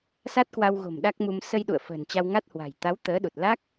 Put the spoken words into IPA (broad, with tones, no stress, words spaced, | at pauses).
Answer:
sa˦˥t̚kwa˧wɣo̤˨˩m ɗa˦˥k̚mu˧m sə˧jɗṵ˧˨ə̯ fə̤ː˨˩nt͡ɕa˧wŋa˦˥t̚hwa̤˨˩j t̪a˨˦w t̪əː˨˦ɗu˨˩t̚ la˦˥k̚